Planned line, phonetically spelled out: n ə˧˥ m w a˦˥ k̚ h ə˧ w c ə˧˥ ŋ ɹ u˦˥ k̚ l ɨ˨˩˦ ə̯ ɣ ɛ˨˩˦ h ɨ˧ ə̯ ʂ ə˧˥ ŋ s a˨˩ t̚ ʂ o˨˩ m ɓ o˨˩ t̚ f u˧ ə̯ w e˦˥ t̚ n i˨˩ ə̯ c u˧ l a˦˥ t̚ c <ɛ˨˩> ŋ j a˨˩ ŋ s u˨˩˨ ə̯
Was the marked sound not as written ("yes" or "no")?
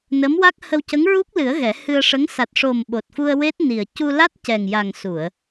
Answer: no